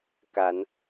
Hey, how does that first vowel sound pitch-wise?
rising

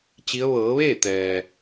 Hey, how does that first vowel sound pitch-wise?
rising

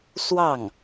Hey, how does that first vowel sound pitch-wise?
falling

